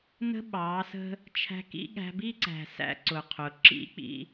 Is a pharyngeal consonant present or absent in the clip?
absent